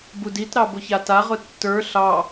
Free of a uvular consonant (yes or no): no